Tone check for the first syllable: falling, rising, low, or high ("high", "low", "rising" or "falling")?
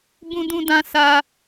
high